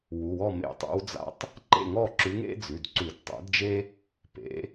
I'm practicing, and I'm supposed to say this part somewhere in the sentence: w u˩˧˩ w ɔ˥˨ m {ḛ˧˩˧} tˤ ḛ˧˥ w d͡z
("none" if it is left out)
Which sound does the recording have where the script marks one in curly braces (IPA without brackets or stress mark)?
ḛ˧˩˧